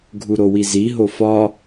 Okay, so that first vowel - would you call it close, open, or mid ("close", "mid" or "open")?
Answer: close